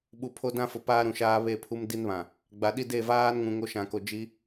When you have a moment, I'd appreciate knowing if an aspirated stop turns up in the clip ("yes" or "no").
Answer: yes